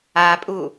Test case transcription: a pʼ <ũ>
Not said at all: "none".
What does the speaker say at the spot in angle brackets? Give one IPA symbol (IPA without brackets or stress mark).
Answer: u